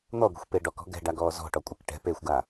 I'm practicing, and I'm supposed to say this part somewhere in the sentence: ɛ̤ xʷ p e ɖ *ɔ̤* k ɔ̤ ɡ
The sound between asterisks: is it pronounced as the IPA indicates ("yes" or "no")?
no